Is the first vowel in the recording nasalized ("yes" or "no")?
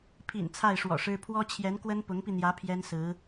no